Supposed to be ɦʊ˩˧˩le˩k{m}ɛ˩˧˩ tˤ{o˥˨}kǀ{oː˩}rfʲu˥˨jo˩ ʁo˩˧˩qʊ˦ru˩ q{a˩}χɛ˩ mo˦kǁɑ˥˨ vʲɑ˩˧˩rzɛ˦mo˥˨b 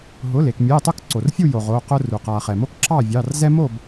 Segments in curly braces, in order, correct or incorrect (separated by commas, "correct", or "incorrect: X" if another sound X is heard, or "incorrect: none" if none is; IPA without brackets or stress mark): incorrect: mʲ, correct, incorrect: o˩, correct